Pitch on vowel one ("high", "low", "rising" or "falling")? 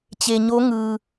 low